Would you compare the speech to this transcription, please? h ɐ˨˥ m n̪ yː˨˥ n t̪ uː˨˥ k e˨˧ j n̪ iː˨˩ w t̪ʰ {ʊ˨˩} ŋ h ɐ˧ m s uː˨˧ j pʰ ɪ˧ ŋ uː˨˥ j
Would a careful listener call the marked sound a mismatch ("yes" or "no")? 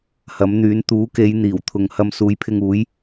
yes